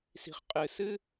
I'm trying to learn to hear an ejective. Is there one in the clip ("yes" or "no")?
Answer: yes